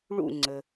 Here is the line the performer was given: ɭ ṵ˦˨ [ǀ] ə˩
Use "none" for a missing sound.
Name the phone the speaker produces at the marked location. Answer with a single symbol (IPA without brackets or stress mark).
ŋ͡ǀ